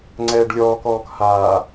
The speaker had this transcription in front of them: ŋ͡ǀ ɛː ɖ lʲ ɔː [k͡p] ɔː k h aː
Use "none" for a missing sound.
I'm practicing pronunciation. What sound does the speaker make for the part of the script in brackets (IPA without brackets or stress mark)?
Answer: k